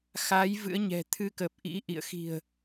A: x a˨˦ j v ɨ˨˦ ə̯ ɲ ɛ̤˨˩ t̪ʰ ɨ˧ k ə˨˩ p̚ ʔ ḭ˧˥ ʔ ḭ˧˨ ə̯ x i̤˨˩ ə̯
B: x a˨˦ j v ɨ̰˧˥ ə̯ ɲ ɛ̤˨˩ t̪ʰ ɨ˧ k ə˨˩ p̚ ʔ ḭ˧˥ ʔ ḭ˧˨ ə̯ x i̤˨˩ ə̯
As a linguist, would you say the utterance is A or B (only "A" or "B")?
B